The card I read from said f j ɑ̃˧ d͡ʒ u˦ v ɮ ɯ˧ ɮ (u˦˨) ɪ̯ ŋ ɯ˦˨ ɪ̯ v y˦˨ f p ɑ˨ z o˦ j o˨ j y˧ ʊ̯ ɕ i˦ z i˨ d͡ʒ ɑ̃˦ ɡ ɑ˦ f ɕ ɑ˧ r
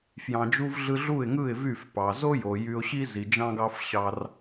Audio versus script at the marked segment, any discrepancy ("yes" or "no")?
no